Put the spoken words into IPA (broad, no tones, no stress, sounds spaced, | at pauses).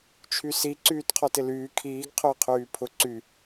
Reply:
t͡ʃʰ y s i ǀ yː t qʰ ɔ t ɪ l yː kʰ iː ɡ qʰ ʊː qʰ yː pʰ ʊ ǀ y